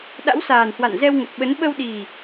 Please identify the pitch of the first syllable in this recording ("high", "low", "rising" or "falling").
rising